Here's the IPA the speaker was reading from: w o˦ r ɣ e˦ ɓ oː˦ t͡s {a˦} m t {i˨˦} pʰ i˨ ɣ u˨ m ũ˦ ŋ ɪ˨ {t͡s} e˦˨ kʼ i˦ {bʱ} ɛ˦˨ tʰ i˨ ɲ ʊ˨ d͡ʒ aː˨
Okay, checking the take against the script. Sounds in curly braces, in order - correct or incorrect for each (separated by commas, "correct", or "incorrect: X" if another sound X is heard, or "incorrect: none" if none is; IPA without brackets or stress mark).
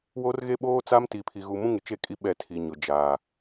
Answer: correct, incorrect: i˨, incorrect: t͡ʃ, incorrect: ɓ